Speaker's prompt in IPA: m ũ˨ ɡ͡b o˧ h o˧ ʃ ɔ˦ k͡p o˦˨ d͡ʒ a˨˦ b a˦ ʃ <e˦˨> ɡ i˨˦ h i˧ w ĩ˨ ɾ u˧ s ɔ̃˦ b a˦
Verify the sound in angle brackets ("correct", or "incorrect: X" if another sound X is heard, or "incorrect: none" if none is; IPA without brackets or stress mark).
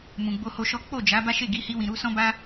correct